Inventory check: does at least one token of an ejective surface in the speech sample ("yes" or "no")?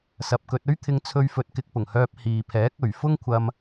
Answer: no